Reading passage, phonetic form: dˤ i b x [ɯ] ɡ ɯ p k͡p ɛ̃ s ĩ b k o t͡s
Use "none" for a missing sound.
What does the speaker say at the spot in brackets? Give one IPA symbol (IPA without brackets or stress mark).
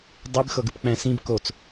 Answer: ɤ